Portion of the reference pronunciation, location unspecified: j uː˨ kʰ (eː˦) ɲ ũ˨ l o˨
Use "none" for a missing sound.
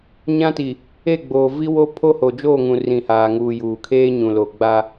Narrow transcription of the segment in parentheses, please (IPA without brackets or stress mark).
eː˦